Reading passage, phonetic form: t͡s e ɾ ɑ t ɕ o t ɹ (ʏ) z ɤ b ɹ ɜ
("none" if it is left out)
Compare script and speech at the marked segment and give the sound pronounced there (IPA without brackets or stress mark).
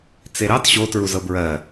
u